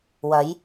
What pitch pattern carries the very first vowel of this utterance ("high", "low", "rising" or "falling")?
rising